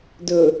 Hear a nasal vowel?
no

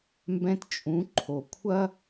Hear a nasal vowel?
yes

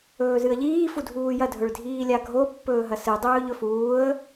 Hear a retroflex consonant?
yes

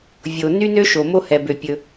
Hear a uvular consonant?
no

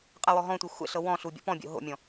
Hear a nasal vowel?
yes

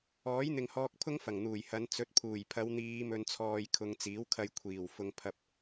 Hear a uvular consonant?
no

